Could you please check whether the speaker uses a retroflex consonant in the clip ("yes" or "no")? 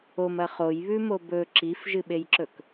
no